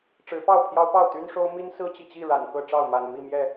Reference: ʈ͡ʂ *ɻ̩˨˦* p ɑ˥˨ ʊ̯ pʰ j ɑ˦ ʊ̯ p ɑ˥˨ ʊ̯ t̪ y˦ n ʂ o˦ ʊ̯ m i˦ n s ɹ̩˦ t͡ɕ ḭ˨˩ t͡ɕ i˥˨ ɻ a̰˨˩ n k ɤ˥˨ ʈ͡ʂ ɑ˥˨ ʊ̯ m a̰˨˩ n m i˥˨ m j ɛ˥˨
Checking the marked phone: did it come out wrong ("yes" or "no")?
no